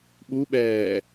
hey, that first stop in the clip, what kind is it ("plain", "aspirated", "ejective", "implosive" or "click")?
implosive